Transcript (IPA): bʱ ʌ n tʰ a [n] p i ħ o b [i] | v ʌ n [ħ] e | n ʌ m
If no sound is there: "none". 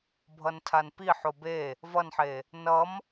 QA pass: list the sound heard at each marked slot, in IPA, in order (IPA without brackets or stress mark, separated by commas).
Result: n, e, ħ